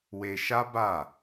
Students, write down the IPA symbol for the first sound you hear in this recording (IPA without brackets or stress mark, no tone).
w